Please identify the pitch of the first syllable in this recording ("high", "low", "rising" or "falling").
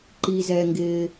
low